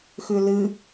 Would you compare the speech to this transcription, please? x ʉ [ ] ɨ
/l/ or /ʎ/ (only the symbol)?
l